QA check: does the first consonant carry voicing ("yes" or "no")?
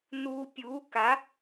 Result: yes